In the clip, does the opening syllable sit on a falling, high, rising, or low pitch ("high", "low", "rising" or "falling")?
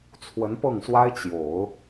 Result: rising